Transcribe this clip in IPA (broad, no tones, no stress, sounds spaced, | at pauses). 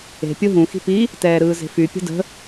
e̤ pʲ ɯ ɦ ũ x i̤ p i | t ɛː ɾ ɯː z e̤ f y pʲ ə̤ d ə̤